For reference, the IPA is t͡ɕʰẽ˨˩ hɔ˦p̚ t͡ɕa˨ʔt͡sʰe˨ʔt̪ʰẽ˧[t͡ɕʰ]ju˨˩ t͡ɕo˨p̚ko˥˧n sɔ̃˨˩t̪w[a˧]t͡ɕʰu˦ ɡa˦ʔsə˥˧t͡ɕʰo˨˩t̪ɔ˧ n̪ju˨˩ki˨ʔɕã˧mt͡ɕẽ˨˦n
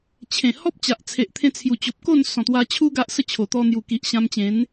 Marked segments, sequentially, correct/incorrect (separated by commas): incorrect, correct